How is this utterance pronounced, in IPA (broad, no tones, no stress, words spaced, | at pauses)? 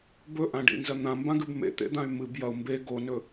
bɵʔãɖḭnzɐ n̪ãmbãɡʉb mḛt̪ḛd̪ãy̯ mɨb jɐu̯ mbe ɡonɵ